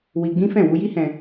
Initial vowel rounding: unrounded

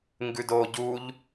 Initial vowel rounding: rounded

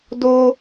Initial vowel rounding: rounded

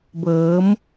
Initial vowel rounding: unrounded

